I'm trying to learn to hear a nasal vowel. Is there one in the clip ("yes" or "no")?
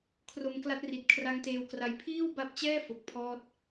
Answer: no